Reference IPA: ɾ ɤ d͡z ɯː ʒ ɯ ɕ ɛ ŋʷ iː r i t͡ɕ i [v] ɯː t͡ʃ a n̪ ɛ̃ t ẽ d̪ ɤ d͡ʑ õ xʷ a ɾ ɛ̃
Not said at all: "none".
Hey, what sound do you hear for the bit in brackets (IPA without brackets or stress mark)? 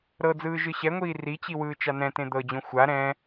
w